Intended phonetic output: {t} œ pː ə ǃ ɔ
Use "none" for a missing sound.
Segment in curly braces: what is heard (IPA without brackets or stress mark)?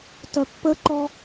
t